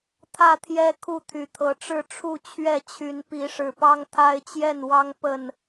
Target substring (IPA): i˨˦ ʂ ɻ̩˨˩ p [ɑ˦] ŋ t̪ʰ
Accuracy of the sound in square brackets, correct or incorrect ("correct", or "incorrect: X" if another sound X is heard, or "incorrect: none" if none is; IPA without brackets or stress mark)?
correct